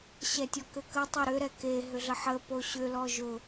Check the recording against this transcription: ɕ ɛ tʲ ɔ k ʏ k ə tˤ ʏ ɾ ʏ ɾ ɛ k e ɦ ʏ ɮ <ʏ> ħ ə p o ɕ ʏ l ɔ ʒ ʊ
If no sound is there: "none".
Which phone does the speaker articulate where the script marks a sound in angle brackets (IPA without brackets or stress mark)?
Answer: ə